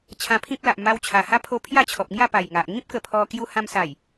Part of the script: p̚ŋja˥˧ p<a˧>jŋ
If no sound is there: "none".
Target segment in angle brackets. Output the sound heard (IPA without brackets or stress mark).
a˨˩